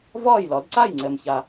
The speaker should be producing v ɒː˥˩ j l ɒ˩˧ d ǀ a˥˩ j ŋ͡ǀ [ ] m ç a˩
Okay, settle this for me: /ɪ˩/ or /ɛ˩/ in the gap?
ɛ˩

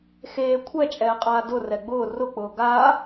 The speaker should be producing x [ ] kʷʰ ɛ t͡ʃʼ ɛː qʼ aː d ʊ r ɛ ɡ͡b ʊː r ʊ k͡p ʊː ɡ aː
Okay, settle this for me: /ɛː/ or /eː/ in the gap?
eː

